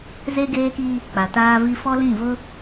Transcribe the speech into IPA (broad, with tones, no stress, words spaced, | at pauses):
ze˦ɡeː˦ki˦ | k͡pa˨taː˦vi˦ fɔ˦lĩ˦˨ vʊ˦